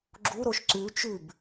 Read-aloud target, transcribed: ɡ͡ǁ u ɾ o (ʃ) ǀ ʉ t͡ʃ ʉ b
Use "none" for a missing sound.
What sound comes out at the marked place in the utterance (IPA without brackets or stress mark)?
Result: ʃ